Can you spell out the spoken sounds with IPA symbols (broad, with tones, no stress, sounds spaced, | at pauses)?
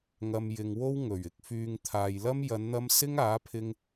ŋ ɐ˧ m j ɪ˧ ŋ w o˥ w ŋ ɵ˨˩ ɥ ɪ˧ k̚ f yː˧ ŋ t̪ʰ aː˨ j l ɐ˥ m j ɐ˨˧ n n̪ ɐ˧ m s ɪ˥ ŋ aː˨˥ pʰ ɪ˧ ŋ